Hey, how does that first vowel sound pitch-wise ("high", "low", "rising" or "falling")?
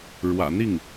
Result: low